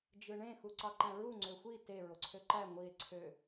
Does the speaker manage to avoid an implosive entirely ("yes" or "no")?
yes